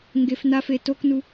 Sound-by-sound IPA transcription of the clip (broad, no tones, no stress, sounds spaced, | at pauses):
ŋ ɡ e f n a f e t o k n u